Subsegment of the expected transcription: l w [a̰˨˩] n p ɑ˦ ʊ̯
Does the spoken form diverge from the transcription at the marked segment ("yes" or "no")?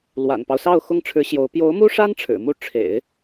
no